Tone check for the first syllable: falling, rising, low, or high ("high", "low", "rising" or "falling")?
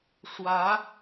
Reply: rising